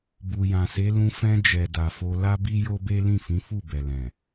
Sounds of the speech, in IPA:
bu˨jã˨se˨˦ lũ˧ fɛ̃˧ d͡ʒɛ˨ da˨fo˧ la˦bi˦jo˦be˦ lĩ˦˨fĩ˨˦fu˦˨ bɛ˨ lɛ̃˨

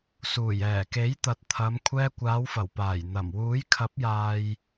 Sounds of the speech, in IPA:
suː˨˩jɛː˨˩ke˨˥jt̪ɐ˨t̚ t̪ʰɐ˨˧m kʷʰɛː˧kʷaː˨˧wfɐ˨˩wpaː˨˩j n̪ɐ˨˩m wuː˨˥jkʰɐ˨˥p̚jaː˨j

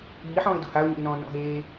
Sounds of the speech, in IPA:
iːħɔ̃ːɪ̯ do̤haʊ̯ɲḭlnɔ̃ː nɔ̰ɦeː

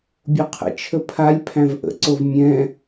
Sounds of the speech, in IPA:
bʲoqʰə̰t͡ʃʰə pʰalʲ pʰæ̃vʔə̰ǀov mʲɛ̃

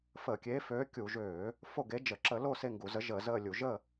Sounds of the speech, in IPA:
fəː˧˩˧kʲeː˨˥ føː˨˥kʲu˧˩˧ʒøː˧˩˧ | fo˦˨ɡe˨˥d͡ʒə˧˩˧ ǁə˧˩˧lo˦˨ se˦˨ŋɡu˧˩˧zə˨˥ ʒəː˧˩˧zəː˦˨lʲu˧˩˧ ʒə˦˨

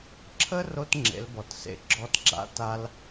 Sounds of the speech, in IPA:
ǁʰə˦ ro˦tŋ͡ǁḛ˨˦lbɔ˨tsḛ˧ ɡ͡ǁɔ˦tɡ͡ǁa̰˦ ta˦l

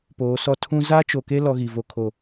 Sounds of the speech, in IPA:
poː˨˦sɔ˦ tʰũ˦ za˦t͡ʃo˨ke˦ lɔ˦ ɣi˨ vo˦kʰo˦˨

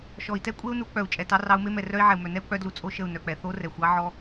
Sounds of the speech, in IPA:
ʃɔ˨i̯tɛ˦kʷʼe˦u̯nu˨˦ k͡pœ˨u̯ t͡ʃʼɛ˨tɑ˧ rɑ˧u̯me˦mɛ˨ rœ˦i̯ʕɛ˨u̯mœ˨nɛ˦u̯ k͡pœ˦dlu˧ t͡sʼo˦ʃə˦˨u̯nœ˨k͡pɛ˨ θo˦rɛ˨xʷ ɑ˦ʕɔ˧

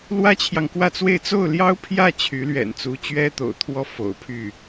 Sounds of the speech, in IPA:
lwä˥t͡ɕʰjɑ˨ŋkwä˥˧t͡swe˥˧ɪ̯ t͡so˥˩ʊ̯ljɑ˥ʊ̯pʰjä˥˩ t͡ɕʰy˧˥lɥɛ̰˨˩nt͡su˧˥ t͡ɕɥɛ˥t̪o̰˨˩ʊ̯t̪ʰwɔ˥˩ fo̰˨˩ʊ̯pʰy˥˩

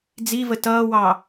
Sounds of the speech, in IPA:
d͡zivə tʌːwɑ

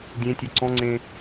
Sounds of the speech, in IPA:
dʲẽtʲœ ǀɔ̃ŋ͡ǀẽ

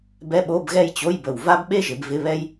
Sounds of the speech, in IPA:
bɛ˧˥˧ɓo˧˥˧bɣɛ˥˧j t͡ɕo˧˥˧jbə˨˩w va˥bɓe˥ʒɪ˩˧b vɪ˧˥˧βɛ˥j

